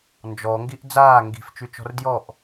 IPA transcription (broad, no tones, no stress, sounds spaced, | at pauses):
n d͡ʒ ɔ ŋ ɡ i ʔ d͡z aː ŋ ɡ i̤ f t͡ʃ y t͡ʃ ɔ̤ r d j ɔ ʔ